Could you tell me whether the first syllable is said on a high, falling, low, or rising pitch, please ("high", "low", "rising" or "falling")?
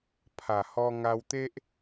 low